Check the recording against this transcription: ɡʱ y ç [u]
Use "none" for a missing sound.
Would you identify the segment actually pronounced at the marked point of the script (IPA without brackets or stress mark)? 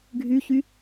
y